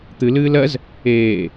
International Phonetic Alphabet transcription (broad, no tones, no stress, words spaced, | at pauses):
t̪ɨlɨːl ɜz | eː